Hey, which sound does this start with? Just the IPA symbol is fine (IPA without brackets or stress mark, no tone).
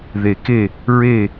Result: ð